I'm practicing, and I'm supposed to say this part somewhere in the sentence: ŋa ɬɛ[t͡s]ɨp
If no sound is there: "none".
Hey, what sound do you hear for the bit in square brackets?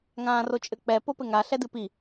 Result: d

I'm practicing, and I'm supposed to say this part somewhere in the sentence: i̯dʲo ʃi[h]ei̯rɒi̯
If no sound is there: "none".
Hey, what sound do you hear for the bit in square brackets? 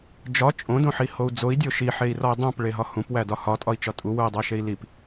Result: ħ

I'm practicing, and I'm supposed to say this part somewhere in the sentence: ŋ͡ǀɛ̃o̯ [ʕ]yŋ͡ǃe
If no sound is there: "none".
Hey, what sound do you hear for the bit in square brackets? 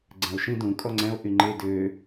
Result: ʔ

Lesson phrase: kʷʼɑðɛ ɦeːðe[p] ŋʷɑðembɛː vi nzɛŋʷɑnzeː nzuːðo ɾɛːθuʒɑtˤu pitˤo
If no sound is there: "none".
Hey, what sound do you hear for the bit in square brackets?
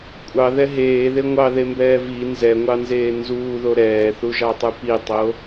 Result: none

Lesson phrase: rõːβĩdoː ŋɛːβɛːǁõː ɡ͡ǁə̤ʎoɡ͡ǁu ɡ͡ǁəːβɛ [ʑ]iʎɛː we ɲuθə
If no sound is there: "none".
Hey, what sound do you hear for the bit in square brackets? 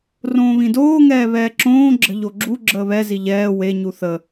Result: z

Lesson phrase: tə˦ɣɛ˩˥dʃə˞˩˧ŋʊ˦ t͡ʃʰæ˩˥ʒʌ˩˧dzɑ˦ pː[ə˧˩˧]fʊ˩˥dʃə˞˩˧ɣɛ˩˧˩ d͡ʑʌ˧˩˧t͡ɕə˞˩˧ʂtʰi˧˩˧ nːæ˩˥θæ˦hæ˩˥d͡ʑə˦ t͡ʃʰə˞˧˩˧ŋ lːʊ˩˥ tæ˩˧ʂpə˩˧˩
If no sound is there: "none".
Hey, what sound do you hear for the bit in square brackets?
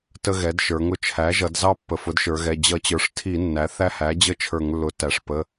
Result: ə˩˧˩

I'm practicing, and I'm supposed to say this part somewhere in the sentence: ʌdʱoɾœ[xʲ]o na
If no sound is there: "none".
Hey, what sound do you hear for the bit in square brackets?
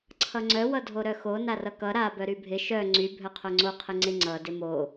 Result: x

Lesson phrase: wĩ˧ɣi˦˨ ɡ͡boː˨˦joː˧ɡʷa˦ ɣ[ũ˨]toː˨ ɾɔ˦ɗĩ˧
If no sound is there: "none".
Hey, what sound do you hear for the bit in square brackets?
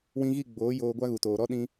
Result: u˨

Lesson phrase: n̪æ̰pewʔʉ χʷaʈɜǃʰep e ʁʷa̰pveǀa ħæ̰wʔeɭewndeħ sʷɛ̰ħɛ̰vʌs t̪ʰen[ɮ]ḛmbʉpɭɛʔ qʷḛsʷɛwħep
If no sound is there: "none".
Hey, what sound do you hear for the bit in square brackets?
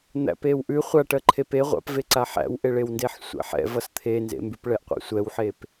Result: z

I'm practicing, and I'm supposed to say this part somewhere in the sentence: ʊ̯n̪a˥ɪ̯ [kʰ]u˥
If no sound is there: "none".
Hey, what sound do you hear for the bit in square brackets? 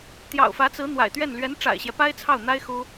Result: x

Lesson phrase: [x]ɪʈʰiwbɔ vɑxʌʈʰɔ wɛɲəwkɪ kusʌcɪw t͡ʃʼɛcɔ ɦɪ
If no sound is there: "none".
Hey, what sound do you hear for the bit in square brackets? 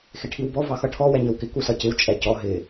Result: x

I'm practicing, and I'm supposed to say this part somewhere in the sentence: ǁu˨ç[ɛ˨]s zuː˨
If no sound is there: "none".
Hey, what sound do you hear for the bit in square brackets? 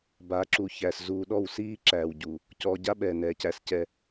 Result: æ˨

